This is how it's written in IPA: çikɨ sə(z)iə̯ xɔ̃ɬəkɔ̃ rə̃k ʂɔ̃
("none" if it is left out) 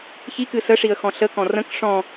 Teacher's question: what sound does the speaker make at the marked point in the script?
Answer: ʂ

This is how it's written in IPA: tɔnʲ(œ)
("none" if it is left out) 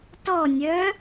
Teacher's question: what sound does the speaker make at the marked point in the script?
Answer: œ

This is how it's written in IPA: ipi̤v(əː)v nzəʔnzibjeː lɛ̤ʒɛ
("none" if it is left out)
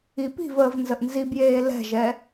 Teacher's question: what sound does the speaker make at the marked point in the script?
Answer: əː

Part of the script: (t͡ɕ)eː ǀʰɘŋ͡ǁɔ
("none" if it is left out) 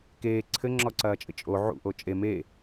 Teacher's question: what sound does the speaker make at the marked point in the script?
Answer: k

